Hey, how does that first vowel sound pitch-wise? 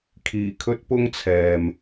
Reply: low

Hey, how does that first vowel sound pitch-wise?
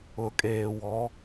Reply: low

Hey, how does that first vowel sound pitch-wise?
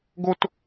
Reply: high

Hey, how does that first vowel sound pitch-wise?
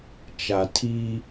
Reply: low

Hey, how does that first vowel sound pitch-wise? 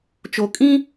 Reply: low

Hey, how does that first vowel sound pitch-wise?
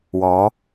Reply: rising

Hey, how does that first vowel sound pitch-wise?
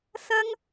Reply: high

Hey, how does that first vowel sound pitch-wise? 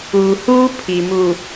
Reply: low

